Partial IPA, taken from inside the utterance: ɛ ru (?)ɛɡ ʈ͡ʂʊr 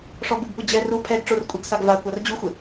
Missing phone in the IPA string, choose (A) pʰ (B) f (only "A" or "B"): A